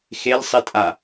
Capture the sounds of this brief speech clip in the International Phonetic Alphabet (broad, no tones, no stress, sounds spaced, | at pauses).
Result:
x e l sˤ i tʼ a